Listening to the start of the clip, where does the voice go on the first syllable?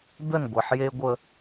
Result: falling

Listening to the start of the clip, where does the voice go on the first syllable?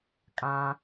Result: low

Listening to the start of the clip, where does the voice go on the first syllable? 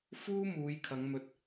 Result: high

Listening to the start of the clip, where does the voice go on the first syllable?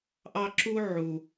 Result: high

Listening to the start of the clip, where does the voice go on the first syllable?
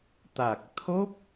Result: low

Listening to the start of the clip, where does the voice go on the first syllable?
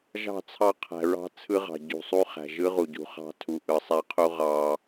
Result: falling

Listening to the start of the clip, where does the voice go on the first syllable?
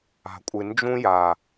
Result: low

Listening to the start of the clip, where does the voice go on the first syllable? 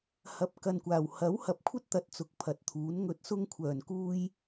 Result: rising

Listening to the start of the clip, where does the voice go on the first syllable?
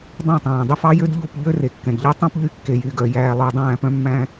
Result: falling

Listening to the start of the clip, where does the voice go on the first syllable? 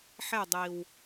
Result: falling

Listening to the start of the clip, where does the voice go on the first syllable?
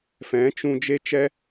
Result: rising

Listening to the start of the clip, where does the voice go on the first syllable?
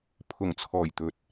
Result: low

